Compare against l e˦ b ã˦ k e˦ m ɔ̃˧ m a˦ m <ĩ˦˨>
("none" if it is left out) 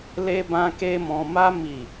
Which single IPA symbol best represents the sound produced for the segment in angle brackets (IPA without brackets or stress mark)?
i˦˨